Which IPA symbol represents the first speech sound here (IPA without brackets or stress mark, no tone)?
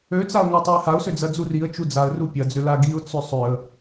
ø